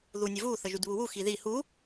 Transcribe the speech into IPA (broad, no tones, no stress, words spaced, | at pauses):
ðunʲəvu θəʒydβuwu xiði hu